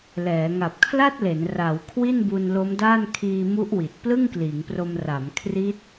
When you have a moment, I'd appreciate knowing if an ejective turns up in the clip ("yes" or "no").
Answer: no